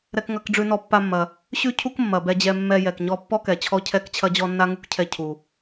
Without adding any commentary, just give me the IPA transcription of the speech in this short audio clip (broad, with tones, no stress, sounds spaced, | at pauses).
ɾ ɛ˧ k ŋ ɐ˧ k ɖ͡ʐ ʉ˧ n ɔ˧ pː a˧ mː ɐ˩ | ɕ ʉ˥ cʰ u˥ k mː ɐ˩ b ɛ˧ d͡ʑ ɛ˧ mː ɛ˧ j ɛ˩ k ɲ ɔ˧ pː ɔ˥ k ɛ˩ t͡ɕʰ ɔ˧ cʰ ɛ˧ k t͡ɕʰ ɐ˧ d͡ʑ ɔ˧ nː a˥ ŋ u˥ k cʰ ɛ˧ cʰ u˩